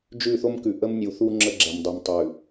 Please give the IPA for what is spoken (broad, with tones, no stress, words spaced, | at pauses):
d͡ʒʉ˦˨θo˦m kʉ˨ʔə˦mnʲu˨θu˦ ŋ͡ǁə˦ɡ͡ǁɛ˨mdˤu˨m tˤʉ˨